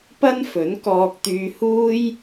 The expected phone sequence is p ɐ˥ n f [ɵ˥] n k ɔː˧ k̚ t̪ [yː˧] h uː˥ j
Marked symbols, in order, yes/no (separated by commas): no, yes